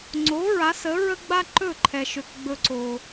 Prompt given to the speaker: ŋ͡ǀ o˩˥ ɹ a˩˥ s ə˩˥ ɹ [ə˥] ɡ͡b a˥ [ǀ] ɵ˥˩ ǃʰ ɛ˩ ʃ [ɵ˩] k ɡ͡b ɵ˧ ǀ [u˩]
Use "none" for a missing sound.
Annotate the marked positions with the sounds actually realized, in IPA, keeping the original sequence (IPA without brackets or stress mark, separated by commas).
ə˥, ǃ, ø˩, o˩